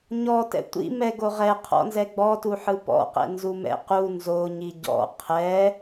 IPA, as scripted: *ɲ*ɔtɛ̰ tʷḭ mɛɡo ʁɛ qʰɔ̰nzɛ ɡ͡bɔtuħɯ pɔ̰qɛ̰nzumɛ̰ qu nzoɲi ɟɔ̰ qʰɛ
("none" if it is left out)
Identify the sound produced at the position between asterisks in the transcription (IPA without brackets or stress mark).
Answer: ɲ